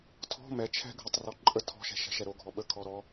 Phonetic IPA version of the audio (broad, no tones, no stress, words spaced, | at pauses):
tʰɔ̤ mɛ t͡ʃʰɛ̤ ɡʱətˤrɔ ǃʼə tʰɔ̤ʃɛ̤ ʃɛ̤ʃɛɾoɡʱɔ ɓəkʰɔ ɾɔ